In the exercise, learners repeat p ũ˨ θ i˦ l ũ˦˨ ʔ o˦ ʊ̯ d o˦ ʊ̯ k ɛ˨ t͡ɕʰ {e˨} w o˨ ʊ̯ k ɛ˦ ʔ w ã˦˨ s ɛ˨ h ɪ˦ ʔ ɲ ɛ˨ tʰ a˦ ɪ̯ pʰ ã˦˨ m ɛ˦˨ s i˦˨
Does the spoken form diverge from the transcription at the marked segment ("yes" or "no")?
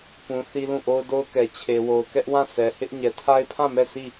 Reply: no